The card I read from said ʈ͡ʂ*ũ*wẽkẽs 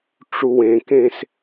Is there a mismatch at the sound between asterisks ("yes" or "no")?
yes